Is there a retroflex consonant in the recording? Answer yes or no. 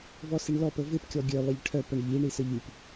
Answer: yes